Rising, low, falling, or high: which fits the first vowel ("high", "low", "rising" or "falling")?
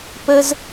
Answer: high